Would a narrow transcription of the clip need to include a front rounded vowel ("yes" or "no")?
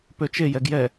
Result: yes